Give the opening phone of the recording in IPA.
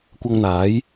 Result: kʷ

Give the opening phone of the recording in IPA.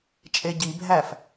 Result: t͡ʃʼ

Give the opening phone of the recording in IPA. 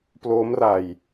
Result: p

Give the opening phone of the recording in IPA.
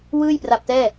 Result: w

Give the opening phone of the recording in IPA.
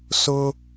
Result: s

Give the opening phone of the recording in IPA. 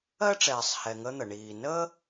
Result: ɜ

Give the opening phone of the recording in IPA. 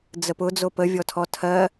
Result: d͡z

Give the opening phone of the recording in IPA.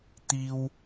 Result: t̪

